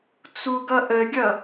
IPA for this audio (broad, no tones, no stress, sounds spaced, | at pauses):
t͡s u ɡ ʌ ʔ ə ɡʲ ʌ